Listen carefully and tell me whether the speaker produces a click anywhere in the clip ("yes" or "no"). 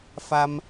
no